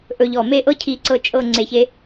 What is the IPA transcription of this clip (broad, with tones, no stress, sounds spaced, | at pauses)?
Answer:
ʔ ɵ˧ ʎ ɔ˧˩ m e˥˧ ʔ ɤ˥ cʰ i˧ ǀ ɤ˧ t͡ʃʼ ɤ˥˧ ŋ͡ǀ e˧˩ ç e˧